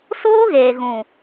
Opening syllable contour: high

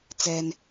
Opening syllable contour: low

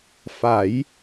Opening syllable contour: rising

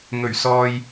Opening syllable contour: low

